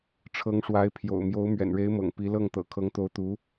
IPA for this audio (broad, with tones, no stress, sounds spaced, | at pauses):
ʈ͡ʂʰ ɤ˧˥ ŋ ʂ w a˧˥ ɪ̯ pʰ j o̰˨˩ ʊ̯ m j o˧˥ ʊ̯ m ɥ ɛ̰˨˩ n ɻ e˧˥ ɪ̯ m ɤ̰˨˩ ŋ p i˧˥ l ɤ˥˩ ŋ t̪ ɤ̰˨˩ kʰ ɤ˧˥ ŋ t̪ o˧˥ ʊ̯ t̪ u˧˥